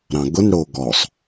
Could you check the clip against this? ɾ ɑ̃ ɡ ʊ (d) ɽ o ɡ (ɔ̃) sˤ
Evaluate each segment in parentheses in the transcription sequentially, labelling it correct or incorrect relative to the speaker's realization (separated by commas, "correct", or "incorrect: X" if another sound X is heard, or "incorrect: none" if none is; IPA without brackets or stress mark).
incorrect: n, incorrect: ɔ